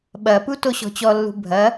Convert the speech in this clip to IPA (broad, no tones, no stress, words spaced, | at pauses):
ɓɐpu toɕɔ̤t͡ɕɔlːṳ bʱɐ